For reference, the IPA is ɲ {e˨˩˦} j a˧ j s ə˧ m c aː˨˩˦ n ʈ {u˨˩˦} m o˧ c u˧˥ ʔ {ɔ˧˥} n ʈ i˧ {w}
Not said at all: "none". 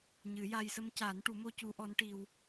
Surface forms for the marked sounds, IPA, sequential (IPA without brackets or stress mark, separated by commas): ɨ˨˩˦, u˨˩˦, ɔ˧˥, w